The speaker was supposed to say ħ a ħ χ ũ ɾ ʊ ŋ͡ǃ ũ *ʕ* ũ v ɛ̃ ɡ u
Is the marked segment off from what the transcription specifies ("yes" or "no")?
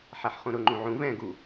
no